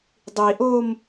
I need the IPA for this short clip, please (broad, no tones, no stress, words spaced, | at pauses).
dˤiʔom